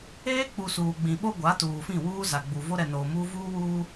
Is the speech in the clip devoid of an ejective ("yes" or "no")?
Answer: yes